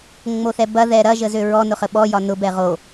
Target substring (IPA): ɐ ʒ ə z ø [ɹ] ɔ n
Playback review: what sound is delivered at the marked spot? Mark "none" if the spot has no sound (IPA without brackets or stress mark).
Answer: ɹ